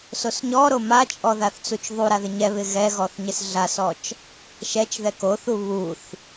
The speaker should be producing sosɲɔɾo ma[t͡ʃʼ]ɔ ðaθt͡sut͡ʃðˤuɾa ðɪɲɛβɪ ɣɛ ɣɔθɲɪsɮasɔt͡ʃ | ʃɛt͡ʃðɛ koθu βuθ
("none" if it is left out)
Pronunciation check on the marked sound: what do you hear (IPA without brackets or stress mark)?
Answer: t͡ʃʼ